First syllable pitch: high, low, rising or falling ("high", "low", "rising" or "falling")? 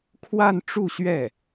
falling